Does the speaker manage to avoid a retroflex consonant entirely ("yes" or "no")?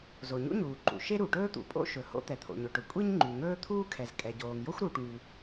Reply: no